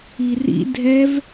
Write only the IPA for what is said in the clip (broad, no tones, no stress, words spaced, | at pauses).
irḭ dʱɛv